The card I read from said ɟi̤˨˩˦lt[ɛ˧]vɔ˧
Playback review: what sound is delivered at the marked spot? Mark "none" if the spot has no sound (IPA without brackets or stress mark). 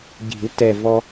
ɛ˨˩